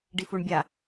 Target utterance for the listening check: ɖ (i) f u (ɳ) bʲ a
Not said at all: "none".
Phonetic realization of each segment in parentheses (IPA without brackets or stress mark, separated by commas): i, ɳ